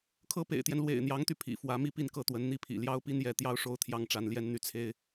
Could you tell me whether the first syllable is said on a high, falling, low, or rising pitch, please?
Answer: high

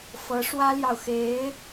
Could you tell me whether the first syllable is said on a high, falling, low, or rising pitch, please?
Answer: rising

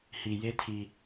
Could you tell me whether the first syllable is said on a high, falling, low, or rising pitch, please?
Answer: low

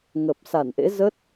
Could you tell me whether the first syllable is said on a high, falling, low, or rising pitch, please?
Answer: low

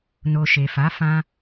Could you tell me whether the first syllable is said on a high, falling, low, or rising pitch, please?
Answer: low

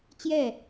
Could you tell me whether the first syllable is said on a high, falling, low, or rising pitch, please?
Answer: falling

